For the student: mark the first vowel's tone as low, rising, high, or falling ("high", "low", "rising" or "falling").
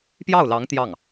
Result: falling